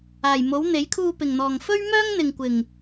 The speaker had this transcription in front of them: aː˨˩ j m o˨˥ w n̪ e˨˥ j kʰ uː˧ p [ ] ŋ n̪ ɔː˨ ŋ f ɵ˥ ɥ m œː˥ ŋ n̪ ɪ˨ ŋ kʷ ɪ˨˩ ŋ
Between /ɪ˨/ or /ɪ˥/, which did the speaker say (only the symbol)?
ɪ˨